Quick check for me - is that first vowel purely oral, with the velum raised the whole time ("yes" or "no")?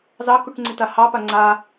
yes